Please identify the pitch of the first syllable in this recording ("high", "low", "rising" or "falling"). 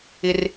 high